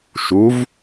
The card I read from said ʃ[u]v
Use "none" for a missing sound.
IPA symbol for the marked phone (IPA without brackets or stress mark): u